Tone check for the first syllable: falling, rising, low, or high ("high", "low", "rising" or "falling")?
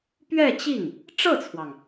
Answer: falling